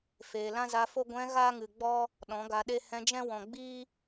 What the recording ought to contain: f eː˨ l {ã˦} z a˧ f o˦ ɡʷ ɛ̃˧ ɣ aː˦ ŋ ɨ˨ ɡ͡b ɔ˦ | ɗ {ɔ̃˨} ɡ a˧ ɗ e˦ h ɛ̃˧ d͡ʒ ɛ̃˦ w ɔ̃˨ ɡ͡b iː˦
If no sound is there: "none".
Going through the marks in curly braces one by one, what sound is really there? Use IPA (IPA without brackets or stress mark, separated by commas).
ã˦, ɔ̃˨˦